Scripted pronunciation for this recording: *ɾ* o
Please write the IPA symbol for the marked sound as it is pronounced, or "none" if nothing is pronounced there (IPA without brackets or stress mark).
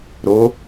ɾ